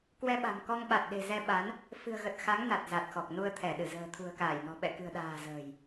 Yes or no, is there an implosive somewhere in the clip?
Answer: yes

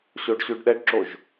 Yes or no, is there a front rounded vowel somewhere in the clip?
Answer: no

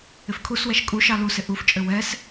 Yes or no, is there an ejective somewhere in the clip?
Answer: yes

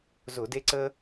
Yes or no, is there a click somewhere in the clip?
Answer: yes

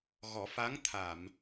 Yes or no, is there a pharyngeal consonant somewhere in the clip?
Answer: no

